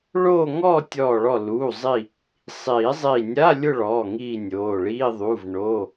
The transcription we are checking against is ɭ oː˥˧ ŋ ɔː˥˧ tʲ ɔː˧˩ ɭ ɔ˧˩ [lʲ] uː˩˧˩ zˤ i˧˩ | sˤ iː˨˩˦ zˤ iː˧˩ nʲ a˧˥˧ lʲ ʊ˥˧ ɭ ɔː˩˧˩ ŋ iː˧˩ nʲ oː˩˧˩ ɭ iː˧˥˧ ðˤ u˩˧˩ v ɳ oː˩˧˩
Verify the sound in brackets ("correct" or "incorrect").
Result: incorrect